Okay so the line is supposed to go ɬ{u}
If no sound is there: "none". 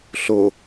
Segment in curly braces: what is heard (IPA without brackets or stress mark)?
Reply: o